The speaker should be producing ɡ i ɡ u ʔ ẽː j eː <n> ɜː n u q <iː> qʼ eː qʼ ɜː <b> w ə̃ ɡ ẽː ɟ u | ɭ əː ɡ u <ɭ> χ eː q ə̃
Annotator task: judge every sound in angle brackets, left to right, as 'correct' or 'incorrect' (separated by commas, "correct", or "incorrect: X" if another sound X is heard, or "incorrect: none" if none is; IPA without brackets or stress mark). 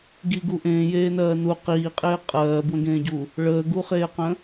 correct, correct, correct, incorrect: none